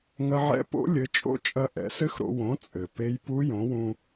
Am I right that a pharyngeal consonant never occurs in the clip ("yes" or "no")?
no